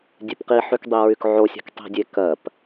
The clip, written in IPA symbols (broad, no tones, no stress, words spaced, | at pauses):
dʲepqiħyk dˤiɹykʕosʲɛ̤k tˤi̤dʲe kɜp